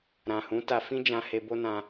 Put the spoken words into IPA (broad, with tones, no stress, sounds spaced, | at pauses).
ɾ ã˨ h ũ˨˦ t a˧ f ĩ˦ d͡ʒ ã˧ h e˧ b o˦ n ã˧